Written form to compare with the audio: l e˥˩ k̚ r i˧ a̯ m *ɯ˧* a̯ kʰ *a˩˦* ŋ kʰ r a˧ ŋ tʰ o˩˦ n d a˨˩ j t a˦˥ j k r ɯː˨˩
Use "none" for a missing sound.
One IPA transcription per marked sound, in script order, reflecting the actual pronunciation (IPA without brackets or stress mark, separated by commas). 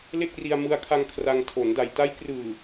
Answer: ɯ˧, a˧